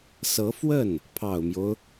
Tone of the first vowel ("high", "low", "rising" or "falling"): rising